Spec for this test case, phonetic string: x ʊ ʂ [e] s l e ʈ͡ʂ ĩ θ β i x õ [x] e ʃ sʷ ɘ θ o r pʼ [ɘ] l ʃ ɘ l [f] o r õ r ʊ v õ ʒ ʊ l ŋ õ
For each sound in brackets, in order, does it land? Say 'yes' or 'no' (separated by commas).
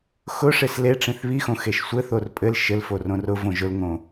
yes, yes, yes, yes